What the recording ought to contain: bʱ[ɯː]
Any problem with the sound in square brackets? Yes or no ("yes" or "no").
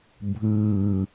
no